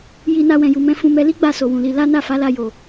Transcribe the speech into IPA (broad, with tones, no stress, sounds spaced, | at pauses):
j i˧ n a˧ w ɛ̃˨ j u˨ m ɛ̃˧ f ũ˧ m ɛ˧ l i˦ ɡ͡b a˦˨ s o˨ w ũ˨ l i˧ l a˦ n a˦˨ f a˨˦ l a˧ j o˨